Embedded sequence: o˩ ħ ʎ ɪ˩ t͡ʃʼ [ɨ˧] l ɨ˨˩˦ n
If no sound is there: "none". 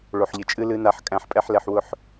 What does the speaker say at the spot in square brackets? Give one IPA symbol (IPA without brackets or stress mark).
ɨ˧